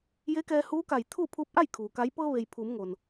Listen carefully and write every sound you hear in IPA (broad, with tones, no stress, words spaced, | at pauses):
je˧˥kɛː˧huː˧˥ka˧˩j t̪ʰuː˥˨pʰuː˧˥p̚ʔa˥˨j kʰuː˩ka˧˥j pɤː˧ʋe˩j pʰuː˩˧mŋo˩n